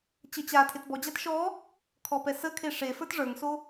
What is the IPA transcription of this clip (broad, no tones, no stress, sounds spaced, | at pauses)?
t͡ɕ ə t͡ɕ a tʰ e t b ɔ d͡ʑ a t ʃ ɔ | kʰ ɔ p ɛ s ə kʰ e ʂ e f ə˞ t ʐ ə˞ ŋ s o